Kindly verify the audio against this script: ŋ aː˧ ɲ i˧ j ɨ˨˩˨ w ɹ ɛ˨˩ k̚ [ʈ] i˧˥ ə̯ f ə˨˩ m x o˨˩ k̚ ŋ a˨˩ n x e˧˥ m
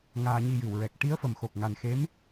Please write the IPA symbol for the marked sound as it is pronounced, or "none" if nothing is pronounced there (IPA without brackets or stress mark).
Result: ʈ